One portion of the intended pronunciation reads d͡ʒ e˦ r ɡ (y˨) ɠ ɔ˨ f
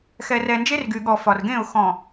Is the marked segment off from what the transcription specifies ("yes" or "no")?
no